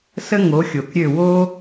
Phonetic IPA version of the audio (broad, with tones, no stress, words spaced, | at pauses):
sə˥ŋo˩˥ xʲo˩kɾʲø˥˩ wo˥